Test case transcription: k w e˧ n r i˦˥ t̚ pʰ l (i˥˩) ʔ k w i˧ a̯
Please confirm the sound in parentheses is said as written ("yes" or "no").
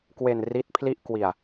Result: yes